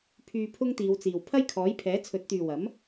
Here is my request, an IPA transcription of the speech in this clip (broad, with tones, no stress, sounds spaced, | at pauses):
pʰ yː˧ pʰ ʊ˥ ŋ t̪ iː˨˧ w t͡s iː˨ w pʰ ɐ˥ j kʰ ɔː˨˥ j pʰ ɛː˨˥ t͡sʰ ɵ˨˥ t̚ t̪ yː˨ w ɐ˨˥ m